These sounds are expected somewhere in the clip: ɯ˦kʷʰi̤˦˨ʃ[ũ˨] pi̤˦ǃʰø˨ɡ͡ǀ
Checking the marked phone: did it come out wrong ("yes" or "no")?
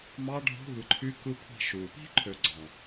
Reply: yes